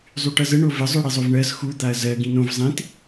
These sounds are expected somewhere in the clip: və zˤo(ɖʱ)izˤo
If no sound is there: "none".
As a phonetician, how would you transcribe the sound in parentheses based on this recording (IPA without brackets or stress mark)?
ɽ